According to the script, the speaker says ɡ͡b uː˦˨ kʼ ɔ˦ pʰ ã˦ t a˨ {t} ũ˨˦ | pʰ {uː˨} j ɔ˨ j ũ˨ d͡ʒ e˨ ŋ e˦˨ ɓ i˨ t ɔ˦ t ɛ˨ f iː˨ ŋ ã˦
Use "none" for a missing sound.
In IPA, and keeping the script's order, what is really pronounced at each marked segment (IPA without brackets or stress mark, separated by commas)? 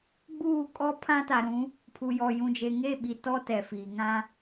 ɾ, u˨